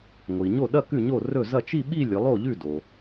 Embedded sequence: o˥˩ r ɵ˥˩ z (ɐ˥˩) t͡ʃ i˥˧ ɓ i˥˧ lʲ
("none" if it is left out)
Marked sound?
ɐ˥˩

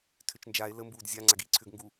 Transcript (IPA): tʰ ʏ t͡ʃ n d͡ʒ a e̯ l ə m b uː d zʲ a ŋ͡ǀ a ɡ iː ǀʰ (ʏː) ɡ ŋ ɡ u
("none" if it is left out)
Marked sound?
ʏː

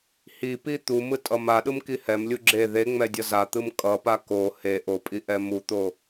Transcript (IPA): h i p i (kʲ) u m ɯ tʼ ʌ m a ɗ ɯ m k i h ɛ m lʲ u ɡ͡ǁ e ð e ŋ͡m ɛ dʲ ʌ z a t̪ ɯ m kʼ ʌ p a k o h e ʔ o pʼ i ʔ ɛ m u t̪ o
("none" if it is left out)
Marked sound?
t̪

